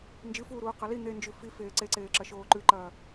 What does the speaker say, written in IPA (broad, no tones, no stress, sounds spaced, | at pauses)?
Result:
n d͡ʒ ɨ f uː ɾ uː q ɐ l i n̪ e n d͡ʒ ʉ f i f eː ǀ e ǀ eː ǁ ɐ ʃ oː ǃ ʉ ǃ ɐː